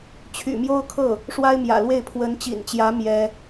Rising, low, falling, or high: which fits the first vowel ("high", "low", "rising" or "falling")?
low